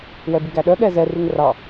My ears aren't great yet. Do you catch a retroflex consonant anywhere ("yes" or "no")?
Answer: no